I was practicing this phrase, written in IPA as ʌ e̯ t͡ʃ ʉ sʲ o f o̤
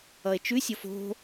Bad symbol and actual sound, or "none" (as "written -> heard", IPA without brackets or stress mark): none